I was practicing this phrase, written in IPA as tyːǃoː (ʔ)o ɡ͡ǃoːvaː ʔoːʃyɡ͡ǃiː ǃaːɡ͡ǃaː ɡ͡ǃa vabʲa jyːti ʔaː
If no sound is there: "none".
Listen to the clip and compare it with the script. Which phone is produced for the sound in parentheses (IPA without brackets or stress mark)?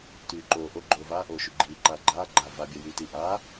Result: ʔ